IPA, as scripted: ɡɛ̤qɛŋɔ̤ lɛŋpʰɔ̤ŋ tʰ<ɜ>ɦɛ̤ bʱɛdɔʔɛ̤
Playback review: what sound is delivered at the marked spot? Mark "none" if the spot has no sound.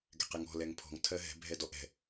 ɜ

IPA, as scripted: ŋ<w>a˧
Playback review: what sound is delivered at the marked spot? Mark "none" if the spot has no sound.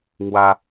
w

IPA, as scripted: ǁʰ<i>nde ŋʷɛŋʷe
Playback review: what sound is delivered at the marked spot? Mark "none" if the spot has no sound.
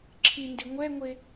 i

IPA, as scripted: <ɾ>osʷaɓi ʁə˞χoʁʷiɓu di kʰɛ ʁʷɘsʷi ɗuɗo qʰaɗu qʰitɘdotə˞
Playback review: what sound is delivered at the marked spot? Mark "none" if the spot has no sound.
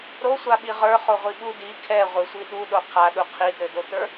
ɾ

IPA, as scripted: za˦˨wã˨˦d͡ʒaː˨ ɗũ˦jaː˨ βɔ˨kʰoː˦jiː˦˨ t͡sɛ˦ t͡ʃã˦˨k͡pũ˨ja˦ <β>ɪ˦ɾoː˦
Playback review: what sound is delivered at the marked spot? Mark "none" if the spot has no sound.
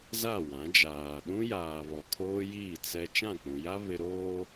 β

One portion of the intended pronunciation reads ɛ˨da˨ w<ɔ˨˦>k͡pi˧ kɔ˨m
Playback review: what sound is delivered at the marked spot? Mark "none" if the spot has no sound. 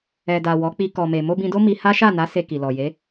ɔ˨˦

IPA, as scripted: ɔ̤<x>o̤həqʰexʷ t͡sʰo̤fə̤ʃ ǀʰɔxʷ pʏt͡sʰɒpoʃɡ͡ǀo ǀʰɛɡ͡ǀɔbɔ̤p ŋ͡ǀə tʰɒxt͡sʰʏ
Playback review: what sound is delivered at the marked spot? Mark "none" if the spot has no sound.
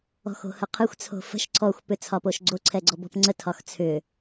x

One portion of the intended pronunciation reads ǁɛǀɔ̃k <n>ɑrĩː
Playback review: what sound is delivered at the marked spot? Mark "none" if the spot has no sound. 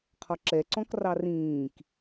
r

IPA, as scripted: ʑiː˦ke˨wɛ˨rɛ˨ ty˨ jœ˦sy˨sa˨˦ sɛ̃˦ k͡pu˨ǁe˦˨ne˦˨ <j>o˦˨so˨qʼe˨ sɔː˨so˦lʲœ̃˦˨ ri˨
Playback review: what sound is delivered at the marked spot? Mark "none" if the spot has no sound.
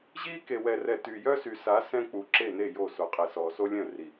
j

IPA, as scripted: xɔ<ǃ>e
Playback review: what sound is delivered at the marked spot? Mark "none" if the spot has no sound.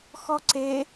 ǀ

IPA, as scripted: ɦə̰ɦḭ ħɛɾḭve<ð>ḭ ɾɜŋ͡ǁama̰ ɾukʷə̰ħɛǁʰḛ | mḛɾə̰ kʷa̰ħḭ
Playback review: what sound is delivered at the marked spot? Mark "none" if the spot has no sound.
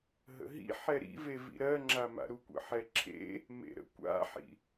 v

